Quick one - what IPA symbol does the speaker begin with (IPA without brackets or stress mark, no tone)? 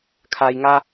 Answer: kʰ